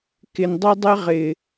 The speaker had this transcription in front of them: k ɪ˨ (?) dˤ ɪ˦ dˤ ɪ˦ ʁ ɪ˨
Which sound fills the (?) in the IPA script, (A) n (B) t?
A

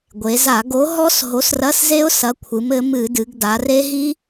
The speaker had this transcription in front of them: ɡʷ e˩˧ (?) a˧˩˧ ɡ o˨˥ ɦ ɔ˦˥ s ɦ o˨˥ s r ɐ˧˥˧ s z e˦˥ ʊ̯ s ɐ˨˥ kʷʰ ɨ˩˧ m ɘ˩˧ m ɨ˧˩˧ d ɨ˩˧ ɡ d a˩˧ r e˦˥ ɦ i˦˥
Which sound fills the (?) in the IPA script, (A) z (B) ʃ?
A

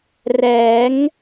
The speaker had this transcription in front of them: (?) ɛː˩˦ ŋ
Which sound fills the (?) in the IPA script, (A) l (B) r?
B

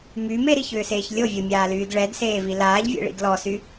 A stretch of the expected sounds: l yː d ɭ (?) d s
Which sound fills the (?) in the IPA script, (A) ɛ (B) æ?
A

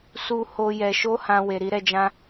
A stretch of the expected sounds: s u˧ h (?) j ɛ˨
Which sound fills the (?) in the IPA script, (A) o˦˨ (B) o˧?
B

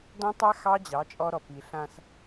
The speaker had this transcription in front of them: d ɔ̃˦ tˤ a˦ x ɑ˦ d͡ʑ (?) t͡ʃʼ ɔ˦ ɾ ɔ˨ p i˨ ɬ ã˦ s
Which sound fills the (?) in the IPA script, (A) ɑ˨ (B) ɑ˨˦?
B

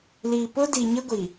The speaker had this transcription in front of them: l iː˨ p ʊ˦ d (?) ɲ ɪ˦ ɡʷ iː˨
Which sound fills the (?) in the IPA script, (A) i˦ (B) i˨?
B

